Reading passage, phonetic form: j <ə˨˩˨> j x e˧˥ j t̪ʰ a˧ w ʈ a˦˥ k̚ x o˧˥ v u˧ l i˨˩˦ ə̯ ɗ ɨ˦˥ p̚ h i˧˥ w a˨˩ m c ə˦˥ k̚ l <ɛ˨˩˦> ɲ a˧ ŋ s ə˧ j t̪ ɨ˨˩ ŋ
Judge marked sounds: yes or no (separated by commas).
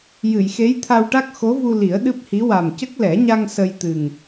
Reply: no, yes